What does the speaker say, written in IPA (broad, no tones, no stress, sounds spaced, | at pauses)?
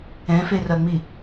ɛ̃ f e r ɐ ŋ͡m i